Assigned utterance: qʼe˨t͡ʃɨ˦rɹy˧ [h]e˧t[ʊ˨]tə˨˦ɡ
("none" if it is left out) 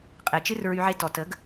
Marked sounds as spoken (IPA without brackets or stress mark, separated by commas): ʕ, ɔ˨